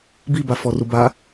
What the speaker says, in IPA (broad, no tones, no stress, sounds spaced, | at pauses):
b i b a f ɔ r u b a